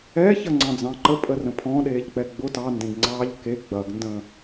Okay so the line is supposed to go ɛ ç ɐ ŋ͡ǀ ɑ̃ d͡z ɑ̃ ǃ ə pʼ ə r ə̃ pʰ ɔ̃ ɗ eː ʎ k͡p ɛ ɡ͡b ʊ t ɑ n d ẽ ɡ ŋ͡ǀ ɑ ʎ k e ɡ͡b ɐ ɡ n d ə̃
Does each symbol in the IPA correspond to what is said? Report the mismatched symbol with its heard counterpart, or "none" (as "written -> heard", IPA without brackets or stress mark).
none